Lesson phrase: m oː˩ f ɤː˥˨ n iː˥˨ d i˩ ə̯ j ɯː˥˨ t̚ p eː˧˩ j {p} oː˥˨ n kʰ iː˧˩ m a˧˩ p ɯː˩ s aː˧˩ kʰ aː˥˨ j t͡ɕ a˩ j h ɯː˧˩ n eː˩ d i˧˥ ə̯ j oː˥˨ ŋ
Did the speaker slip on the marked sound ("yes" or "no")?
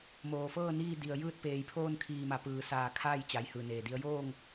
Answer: yes